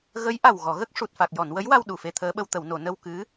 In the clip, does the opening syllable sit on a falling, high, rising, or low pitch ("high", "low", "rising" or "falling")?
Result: rising